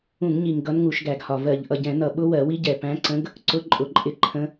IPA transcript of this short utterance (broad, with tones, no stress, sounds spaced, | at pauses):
ũ˧˩˧ ŋ ɲ i˨˩ ŋ ɡ ʌ˧˥ n ŋ u˧˩˧ ʃ ɡ æ˧˩˧ ɡ h ɒ˨˩ v ɜ˧˩˧ ʎ ʔ ʌ˨˩ ɟ ɛ̃˧˩˧ n ʌ˧˩˧ ɓ ʊ˧˥ w ɜ˧˩˧ w i˧˥ ɟ ɛ˨˩ p æ̃˧˥ ǀ ə̃˧˥ ɡ | ǀ ʊ˧˥ ǃʼ ʊ˨˩ ǃʼ ɪ˧˥ ǃʰ ə̃˧˥